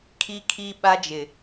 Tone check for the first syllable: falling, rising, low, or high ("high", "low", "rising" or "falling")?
high